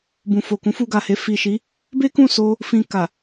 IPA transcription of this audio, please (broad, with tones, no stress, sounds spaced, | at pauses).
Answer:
b ũ˨ f o˨ k ũ˨˦ f u˧ ɡ a˨ h e˧ f i˨ ʃ i˨˦ | b e˦ k ũ˦˨ s o˧ | f ĩ˧ k a˨